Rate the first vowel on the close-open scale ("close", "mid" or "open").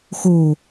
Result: mid